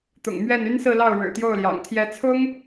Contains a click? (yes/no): no